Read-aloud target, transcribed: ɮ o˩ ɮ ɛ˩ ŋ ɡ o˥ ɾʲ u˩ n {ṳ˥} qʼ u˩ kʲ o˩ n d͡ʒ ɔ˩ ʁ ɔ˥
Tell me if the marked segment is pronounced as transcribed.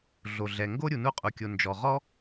no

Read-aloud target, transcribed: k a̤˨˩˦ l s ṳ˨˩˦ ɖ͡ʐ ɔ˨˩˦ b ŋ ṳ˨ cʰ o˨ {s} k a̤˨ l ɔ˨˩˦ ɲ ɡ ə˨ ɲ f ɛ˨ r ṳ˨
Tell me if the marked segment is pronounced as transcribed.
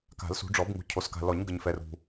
yes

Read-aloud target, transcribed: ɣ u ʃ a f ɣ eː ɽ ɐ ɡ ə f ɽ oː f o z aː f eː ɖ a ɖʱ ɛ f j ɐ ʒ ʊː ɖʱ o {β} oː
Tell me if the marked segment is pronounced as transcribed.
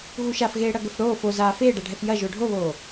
yes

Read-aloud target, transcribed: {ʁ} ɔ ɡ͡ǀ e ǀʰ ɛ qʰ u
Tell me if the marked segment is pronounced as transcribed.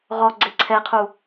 yes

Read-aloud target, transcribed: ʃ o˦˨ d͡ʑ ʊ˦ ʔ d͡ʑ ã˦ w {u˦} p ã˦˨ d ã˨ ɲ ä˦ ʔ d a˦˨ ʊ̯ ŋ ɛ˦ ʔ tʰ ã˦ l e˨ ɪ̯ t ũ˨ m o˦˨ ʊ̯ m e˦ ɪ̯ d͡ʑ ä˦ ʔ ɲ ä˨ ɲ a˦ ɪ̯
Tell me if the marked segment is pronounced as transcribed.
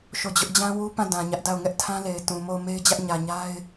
yes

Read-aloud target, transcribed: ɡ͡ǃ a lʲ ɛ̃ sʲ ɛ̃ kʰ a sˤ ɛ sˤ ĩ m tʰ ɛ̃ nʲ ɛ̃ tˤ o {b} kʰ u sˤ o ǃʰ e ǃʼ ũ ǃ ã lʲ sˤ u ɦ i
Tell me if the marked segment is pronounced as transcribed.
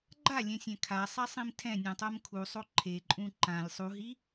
no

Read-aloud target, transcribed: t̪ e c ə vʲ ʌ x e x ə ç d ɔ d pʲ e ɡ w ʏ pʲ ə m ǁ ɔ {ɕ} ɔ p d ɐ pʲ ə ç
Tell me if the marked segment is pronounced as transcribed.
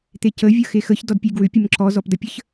no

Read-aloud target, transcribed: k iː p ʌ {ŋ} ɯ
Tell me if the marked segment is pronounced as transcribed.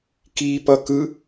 no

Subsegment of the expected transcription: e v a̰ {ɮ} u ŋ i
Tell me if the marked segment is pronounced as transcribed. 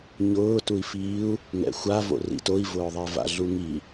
yes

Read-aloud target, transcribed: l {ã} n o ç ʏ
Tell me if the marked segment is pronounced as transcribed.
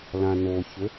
yes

